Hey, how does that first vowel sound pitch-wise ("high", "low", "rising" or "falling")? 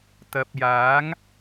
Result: low